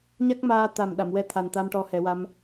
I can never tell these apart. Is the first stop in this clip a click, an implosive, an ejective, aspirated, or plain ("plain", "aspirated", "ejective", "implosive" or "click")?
plain